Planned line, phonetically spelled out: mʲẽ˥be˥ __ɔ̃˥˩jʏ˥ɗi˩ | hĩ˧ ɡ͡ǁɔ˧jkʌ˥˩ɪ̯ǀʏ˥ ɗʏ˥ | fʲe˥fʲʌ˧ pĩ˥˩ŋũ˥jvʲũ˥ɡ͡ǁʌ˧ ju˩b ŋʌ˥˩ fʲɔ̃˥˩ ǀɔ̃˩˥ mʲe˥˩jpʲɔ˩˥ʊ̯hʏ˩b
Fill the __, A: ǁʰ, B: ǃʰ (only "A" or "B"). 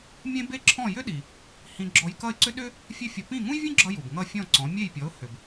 A